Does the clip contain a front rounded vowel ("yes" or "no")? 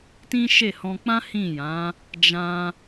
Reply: no